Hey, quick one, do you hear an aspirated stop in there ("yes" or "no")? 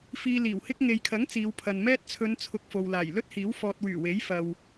yes